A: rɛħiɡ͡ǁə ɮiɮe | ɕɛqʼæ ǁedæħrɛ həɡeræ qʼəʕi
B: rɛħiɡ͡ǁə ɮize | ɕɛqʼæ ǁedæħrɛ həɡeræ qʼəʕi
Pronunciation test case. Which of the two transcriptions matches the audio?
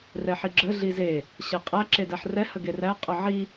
B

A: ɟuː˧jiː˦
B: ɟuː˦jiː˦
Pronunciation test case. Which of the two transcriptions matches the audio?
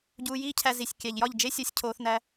A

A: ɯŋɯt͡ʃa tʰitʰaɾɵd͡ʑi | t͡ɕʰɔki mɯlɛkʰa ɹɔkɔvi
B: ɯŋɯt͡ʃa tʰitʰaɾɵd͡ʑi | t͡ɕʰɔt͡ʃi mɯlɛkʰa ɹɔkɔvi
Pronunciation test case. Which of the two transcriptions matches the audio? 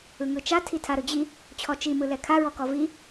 B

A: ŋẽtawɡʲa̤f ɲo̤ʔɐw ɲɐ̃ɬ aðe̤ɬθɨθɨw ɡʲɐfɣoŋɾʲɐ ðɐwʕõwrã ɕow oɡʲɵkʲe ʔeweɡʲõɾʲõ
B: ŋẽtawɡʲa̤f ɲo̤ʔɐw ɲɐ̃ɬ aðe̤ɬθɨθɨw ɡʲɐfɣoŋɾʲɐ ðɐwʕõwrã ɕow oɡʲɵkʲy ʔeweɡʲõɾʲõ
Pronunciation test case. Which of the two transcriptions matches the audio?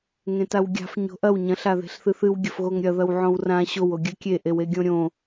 A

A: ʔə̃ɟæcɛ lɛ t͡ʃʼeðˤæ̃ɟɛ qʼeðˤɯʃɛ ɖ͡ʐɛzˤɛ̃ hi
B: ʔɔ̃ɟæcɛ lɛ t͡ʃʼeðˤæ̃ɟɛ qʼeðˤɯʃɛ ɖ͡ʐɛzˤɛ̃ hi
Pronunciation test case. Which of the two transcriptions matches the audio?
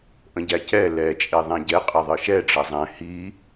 A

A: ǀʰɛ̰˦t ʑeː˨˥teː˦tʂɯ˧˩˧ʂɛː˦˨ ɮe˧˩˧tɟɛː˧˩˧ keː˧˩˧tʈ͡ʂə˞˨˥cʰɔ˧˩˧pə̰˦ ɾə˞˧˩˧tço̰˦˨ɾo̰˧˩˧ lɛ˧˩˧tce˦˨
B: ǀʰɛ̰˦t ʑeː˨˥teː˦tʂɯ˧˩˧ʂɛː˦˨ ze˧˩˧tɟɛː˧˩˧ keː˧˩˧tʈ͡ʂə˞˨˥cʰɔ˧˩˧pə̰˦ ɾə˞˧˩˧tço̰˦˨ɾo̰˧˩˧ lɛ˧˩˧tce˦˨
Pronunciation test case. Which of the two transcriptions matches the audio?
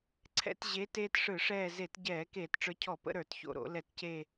B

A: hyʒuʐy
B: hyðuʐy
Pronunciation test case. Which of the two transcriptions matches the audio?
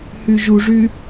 A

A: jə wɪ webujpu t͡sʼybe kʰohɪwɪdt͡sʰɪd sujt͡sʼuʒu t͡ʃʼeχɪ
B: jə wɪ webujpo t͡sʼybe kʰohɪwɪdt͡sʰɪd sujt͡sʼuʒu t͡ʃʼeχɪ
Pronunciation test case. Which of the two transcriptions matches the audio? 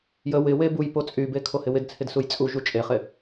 B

